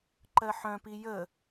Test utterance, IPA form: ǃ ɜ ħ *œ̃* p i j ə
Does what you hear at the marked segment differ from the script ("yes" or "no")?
no